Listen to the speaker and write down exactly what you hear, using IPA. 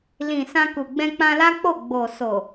lĩ˨ sã˧ku˨ ɡ͡bɛ̃˧k͡pã˧la˦k͡po˦˨ ɡ͡bo˨ so˨

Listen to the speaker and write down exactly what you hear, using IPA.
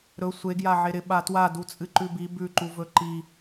ɾɵ sʷe ɡjaʕeɾɪ ɓatwa dut͡sʼɨǃʉbi bʉǃuvɵ ǃi

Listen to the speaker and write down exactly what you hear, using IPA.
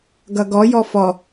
ɡʌɡɔ jɔfɔ

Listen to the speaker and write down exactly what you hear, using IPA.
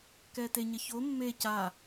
kɛte ɲɐço mːe ca

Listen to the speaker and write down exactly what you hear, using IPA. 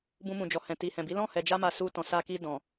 bũ˧mũ˨d͡ʒɔ˨hɛ̃˨ ti˨hɛ̃˨bi˨˦ lɔ̃˦˨hɛ˨d͡ʒa˧ma˨ su˧ tɔ̃˨sa˧ki˧ dɔ̃˨

